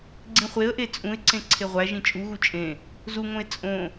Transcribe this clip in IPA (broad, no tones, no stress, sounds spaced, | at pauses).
ɡ͡ǀ ĩ χʷ e ə̯ ʔ e t͡sʼ ũ ɪ̯ ǀ ẽ ǀʰ e ʁʷ æ ʒ ĩ t͡ʃʼ u ɣ u t͡ʃʼ ẽ | z u ŋ õ ɪ̯ t͡sʼ õ